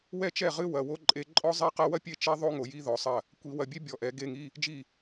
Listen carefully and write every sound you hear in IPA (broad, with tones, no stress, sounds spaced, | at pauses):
w ɛ˥˩ t͡ʃ ɛ˥˩ ʁ ɨ˧˥˧ w ɐ˩˧˩ w o˥ ǃʼ e˧˥˧ ǃʼ ɔ˥ zˤ ɛ˥ q ɐ˥ w ɐ˥ pʲ e˥˩ t͡ʃ ɛ˥ ðˤ o˥ ŋ o˨˩˦ j i˧˥˧ ð ɔ˨˩˦ sˤ ɐ˥˩ | kʷ i˨˩˦ w ɐ˨˩˦ bʲ e˥ bʲ ɔ˩˧˩ ʔ ɛ˨˩˦ ɡ e˧˥˧ ŋ i˧˥˧ | d͡ʒ i˥˩